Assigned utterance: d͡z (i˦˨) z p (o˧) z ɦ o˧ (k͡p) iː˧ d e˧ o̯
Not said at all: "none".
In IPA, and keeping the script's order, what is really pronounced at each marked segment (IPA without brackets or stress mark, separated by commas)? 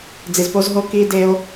i˨, o˧, k